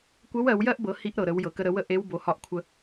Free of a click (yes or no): yes